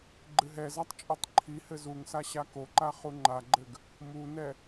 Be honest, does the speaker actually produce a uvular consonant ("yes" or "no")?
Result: yes